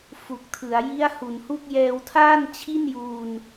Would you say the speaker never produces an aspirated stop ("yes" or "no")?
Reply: no